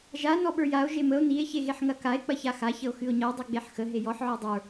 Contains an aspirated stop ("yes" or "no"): no